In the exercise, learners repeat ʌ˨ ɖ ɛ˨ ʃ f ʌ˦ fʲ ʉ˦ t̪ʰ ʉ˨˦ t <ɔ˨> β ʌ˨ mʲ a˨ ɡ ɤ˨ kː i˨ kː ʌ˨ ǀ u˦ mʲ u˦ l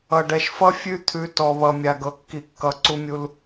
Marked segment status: correct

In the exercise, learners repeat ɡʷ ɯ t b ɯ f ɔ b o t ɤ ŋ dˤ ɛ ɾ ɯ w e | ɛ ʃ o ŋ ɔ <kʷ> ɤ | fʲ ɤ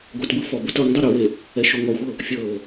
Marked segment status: incorrect: xʷ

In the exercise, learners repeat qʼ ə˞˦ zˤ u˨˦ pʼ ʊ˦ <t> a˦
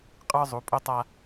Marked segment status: incorrect: tˤ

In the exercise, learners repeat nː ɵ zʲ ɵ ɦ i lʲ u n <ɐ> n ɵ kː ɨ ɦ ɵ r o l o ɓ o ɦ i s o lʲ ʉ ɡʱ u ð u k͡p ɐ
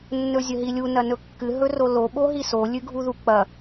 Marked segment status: correct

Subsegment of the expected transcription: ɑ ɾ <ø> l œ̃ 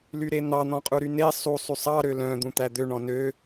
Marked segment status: correct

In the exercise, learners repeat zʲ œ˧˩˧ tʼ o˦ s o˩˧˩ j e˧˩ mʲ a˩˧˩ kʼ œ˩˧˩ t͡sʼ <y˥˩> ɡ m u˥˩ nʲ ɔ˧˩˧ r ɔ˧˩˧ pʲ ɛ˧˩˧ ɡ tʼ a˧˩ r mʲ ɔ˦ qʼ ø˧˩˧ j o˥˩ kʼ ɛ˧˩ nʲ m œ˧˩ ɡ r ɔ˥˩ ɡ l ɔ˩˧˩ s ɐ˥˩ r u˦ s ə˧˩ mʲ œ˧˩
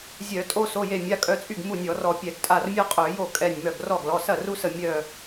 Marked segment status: correct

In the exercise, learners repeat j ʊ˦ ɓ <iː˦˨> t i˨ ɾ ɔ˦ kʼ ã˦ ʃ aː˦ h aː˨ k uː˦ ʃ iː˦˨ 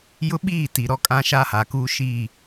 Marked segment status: correct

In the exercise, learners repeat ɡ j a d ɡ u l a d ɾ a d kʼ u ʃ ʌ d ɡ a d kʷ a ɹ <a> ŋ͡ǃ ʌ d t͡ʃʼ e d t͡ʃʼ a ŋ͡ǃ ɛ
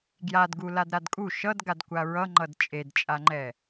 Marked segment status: incorrect: ʌ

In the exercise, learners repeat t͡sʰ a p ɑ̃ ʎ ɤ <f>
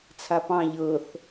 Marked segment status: incorrect: θ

